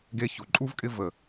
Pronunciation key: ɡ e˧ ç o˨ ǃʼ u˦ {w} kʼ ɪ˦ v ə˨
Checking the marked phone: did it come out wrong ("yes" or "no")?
yes